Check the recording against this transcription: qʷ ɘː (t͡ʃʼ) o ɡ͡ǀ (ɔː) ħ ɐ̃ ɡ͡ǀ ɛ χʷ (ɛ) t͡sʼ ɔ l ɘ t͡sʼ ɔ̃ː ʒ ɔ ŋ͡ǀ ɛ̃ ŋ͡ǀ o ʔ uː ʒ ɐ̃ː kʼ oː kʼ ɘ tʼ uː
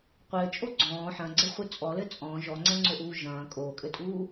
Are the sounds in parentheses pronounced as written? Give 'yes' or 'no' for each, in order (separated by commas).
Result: yes, no, no